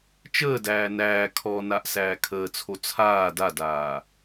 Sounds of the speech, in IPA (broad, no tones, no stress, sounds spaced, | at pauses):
t͡ʃ əː d æː n æː kʰ ɔ n a ʔ s æː kʰ əː t͡sʰ o t͡sʰ aː d a d aː